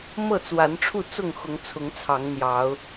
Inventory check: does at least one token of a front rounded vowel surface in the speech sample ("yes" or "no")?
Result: no